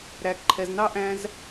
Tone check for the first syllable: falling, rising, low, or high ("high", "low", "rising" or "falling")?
low